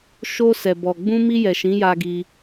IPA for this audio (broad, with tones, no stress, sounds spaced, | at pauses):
ʃ o˧ s ɛ˨ b ɔ˨ ɡ͡b ũ˧ m i˧ j ɛ˨ ʃ ĩ˨˦ j a˧ ɡ i˧